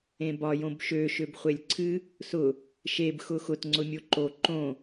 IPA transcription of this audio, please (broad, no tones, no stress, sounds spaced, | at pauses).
ẽ b ɒ j õ b ʃ ø ʃ ø b χʷ e lʲ ǀʰ ɨ | s ʊ | ʃ e b x ʊ x ʊ t ŋ͡ǀ ʊ mʲ o ǃ o ǃ õ